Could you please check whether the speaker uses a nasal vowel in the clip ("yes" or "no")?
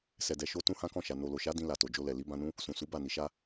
yes